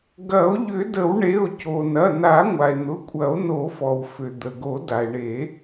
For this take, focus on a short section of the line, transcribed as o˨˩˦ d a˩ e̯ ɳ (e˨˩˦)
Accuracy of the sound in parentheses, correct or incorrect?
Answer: correct